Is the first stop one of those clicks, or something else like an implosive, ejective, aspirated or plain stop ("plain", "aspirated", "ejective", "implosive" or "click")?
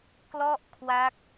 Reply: plain